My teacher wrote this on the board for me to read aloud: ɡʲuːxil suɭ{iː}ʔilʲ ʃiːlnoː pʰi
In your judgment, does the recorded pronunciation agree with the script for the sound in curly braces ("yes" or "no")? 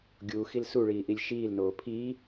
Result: yes